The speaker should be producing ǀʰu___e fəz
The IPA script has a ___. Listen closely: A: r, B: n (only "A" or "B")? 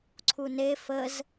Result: B